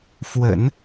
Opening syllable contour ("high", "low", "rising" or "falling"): low